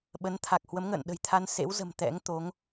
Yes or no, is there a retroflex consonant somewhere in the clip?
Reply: no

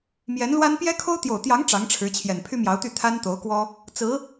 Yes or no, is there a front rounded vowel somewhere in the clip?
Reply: yes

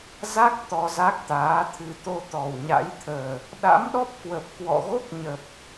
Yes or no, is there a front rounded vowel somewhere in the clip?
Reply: no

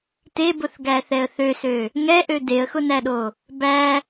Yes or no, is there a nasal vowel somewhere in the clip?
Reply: no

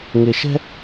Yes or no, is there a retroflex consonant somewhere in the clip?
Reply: no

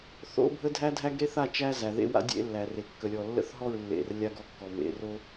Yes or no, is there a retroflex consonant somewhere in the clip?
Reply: no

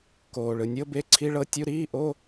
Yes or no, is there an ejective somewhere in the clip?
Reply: no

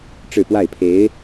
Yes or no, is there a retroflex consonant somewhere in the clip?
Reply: yes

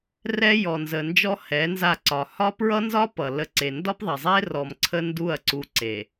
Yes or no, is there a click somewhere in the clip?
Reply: yes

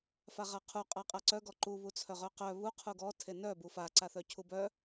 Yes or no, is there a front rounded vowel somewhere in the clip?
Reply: yes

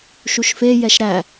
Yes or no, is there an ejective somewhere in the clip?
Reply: no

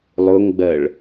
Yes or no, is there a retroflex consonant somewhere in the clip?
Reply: yes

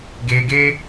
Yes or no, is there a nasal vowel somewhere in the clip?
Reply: no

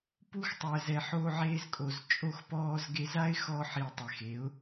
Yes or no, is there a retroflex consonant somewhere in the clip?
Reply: no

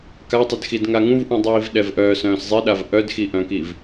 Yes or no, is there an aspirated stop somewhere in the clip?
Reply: no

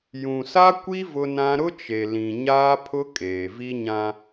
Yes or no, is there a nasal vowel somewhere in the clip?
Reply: yes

